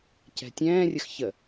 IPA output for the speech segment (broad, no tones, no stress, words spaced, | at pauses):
cɛ̤tʲɛ̃ːrʲəx çə